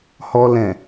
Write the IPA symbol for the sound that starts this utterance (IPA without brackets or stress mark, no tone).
h